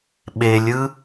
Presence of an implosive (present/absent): present